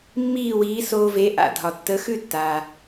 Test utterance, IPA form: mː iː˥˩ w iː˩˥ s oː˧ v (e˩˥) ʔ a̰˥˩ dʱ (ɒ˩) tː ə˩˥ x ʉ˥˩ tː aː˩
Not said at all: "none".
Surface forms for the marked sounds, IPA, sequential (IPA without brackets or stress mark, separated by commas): e˩˥, ɒ˩